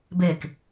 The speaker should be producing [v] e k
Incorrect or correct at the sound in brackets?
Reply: incorrect: b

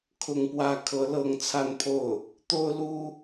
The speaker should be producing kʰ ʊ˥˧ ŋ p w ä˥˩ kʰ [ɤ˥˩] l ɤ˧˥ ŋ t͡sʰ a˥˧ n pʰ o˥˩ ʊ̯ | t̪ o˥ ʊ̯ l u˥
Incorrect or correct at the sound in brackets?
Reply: incorrect: ɤ˧˥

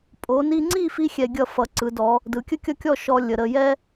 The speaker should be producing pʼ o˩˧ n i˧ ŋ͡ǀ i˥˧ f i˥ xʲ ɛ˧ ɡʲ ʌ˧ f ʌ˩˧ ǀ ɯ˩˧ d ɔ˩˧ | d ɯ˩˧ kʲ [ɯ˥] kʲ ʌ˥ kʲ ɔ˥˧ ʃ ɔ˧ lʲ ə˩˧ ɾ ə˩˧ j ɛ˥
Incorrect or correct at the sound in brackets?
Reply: incorrect: ə˥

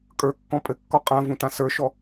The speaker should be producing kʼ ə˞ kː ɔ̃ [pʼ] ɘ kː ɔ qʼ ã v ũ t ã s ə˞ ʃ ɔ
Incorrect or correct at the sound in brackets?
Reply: correct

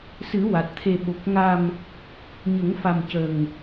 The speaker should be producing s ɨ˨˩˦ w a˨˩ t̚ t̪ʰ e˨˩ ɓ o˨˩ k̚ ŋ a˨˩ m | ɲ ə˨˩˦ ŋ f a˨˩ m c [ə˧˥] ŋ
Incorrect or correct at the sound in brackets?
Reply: incorrect: ə˨˩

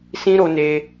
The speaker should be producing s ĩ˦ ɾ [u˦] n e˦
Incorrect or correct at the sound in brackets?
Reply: incorrect: o˦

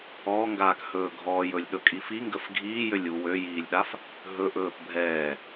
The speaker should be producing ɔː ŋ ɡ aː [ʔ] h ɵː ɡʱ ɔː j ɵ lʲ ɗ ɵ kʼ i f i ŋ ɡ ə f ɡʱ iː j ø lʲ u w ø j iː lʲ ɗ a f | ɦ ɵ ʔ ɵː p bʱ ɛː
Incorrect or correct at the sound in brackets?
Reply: incorrect: k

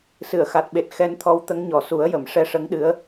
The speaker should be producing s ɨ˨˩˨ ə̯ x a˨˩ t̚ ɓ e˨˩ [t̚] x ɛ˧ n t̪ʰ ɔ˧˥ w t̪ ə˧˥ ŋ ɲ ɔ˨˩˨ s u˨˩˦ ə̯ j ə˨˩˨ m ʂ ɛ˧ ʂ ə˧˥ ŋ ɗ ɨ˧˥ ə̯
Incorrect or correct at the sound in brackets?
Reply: correct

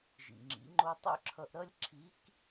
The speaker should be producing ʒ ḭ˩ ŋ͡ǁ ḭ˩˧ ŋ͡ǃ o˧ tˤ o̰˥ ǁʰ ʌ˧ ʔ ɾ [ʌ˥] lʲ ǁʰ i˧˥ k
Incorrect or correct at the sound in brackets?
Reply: correct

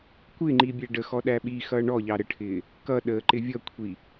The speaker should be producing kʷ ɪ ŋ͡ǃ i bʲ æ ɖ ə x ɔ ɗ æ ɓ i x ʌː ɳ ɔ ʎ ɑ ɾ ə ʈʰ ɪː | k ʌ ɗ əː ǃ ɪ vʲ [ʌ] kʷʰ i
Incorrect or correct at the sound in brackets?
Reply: correct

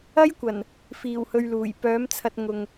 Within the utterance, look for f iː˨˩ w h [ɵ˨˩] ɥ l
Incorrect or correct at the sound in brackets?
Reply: incorrect: ɵ˧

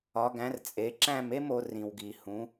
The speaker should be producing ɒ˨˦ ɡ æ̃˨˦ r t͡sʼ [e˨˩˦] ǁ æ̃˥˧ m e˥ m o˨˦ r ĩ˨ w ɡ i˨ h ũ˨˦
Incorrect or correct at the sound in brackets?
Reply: incorrect: e˨˦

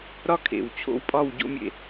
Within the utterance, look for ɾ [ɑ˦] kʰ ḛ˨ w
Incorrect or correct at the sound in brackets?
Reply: incorrect: ɒ˦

